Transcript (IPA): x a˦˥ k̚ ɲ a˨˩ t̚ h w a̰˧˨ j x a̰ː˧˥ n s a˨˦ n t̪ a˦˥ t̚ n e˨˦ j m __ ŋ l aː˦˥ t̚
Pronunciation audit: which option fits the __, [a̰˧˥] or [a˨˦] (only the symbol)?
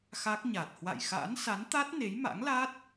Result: a̰˧˥